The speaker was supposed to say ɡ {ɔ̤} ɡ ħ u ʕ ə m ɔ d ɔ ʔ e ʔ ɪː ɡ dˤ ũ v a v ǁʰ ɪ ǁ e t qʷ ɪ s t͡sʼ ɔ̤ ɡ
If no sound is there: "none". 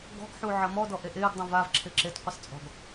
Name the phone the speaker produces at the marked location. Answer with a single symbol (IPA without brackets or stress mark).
ɔ̤